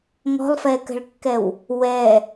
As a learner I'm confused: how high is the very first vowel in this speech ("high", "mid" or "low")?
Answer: mid